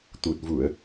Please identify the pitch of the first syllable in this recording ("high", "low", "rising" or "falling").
low